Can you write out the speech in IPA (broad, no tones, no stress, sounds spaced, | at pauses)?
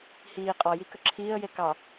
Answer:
h iː qʼ ɔ j i k ə ǁʰ iː ə̯ j e k ɑ